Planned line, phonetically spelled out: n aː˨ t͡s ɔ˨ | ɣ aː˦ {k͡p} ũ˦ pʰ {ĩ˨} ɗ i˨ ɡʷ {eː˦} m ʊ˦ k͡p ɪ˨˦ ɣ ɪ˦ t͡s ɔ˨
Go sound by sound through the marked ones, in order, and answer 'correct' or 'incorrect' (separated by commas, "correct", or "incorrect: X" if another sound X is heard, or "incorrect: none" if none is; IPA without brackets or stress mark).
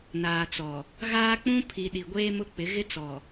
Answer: correct, incorrect: i˨, correct